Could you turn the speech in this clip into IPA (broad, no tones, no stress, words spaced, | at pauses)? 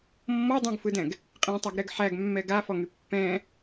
mːɔdˤũɡfɯdɛ̃ɡ | qʼẽtˤaɡɾɛɡ ħæɡmːɛ ɡafɔŋy pːɛ̃